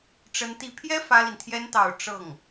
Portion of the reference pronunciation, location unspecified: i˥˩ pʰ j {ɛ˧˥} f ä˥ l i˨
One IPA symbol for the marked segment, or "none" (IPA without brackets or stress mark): ɛ˥